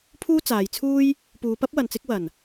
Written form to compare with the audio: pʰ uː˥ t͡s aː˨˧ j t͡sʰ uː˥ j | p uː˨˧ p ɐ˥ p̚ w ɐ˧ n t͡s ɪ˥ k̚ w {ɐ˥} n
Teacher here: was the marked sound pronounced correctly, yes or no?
no